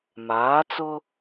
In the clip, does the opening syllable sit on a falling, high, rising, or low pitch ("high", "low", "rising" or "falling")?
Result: rising